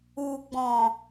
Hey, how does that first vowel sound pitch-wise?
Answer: low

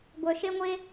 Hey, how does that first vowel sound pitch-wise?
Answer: low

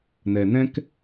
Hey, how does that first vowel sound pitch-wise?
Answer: low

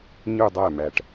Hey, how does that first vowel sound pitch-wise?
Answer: falling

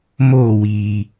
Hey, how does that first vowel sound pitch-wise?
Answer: falling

